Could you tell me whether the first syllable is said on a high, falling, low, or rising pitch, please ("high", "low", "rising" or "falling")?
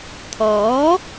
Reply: rising